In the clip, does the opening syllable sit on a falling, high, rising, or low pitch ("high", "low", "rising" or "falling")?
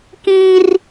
high